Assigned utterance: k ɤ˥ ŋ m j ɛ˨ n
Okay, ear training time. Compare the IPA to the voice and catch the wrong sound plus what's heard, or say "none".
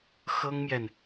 k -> x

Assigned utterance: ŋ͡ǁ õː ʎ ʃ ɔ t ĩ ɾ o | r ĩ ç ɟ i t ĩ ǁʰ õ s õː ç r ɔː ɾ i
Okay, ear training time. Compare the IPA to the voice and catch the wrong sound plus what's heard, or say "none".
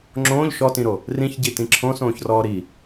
none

